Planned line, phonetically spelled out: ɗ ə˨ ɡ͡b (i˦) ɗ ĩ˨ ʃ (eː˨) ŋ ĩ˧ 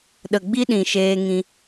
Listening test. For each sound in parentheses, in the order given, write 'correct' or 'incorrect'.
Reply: correct, incorrect

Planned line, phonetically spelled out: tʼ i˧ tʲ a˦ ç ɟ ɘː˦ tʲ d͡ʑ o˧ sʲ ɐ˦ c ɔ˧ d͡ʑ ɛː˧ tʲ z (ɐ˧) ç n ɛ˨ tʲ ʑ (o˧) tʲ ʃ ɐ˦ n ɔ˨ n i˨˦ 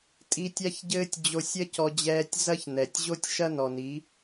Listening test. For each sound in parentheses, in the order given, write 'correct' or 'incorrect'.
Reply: incorrect, incorrect

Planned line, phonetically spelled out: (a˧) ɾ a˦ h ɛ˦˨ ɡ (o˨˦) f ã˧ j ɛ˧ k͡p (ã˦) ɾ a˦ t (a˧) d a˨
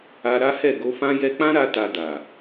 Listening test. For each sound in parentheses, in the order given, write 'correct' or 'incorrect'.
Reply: correct, incorrect, correct, correct

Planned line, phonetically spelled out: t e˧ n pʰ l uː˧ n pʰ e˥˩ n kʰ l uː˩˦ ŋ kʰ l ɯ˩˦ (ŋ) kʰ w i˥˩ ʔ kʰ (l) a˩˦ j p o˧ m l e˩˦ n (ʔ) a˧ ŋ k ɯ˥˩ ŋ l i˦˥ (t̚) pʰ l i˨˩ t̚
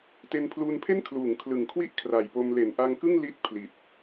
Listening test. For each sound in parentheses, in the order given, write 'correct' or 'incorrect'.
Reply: correct, incorrect, correct, correct

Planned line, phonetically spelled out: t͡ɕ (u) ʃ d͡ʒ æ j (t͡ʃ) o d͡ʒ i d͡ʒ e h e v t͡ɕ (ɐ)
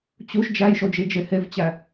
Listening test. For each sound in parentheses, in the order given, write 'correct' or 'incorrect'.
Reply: correct, incorrect, incorrect

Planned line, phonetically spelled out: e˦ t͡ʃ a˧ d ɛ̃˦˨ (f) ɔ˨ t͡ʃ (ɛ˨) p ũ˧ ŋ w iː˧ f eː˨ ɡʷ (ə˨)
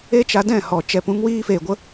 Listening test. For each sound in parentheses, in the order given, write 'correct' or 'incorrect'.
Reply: incorrect, correct, incorrect

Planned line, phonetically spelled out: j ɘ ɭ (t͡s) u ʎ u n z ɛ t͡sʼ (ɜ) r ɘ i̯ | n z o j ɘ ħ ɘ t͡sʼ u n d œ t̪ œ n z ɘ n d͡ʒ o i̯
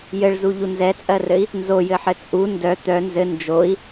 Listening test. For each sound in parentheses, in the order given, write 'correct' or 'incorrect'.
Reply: incorrect, correct

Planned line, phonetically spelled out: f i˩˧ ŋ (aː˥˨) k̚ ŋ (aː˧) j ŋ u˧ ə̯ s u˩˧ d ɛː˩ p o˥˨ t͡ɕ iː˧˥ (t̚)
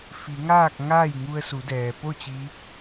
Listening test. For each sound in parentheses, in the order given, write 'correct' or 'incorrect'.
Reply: correct, incorrect, incorrect

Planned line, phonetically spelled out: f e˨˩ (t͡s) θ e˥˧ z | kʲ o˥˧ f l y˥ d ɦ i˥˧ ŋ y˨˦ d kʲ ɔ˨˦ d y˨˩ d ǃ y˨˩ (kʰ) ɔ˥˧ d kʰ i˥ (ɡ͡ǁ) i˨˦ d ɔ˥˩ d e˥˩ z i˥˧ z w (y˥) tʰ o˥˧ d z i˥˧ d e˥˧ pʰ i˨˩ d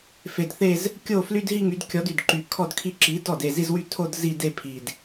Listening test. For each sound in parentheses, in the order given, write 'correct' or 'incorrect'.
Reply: incorrect, correct, incorrect, incorrect

